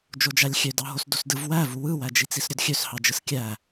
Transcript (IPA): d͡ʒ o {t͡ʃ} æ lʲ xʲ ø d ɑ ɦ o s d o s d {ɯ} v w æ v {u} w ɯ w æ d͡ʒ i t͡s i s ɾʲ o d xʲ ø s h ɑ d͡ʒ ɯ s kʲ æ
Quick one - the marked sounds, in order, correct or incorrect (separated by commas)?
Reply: incorrect, correct, correct